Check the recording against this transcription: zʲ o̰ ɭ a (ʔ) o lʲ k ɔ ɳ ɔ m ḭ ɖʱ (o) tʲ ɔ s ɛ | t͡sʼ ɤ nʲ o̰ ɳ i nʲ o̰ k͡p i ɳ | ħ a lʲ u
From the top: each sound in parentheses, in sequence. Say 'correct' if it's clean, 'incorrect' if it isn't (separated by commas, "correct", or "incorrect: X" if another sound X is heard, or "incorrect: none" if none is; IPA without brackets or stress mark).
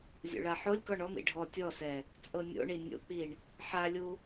incorrect: ħ, incorrect: ɔ